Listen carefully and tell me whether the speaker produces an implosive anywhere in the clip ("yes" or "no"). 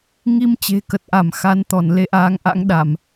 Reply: yes